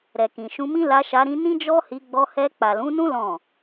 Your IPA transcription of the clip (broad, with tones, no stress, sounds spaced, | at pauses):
ɾ ɛ˨ k ĩ˨ ʃ ũ˧ m ĩ˦ l a˧ ʃ a˧ ɾ ĩ˧ n ĩ˦ d͡ʒ ɔ˦ h i˧ ɡ͡b ɔ˧ h ɛ˧ k͡p a˨ l ũ˨˦ n ũ˦ l ɔ̃˦˨